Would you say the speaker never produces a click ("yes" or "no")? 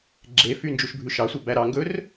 no